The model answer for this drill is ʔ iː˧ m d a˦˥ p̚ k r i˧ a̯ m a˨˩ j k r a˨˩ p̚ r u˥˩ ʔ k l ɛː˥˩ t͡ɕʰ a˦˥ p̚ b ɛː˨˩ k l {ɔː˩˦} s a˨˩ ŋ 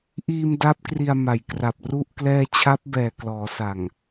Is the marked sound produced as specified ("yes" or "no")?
yes